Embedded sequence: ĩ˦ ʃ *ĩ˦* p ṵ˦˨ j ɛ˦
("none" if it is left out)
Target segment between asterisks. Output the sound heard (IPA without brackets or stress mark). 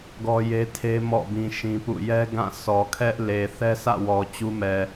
ĩ˦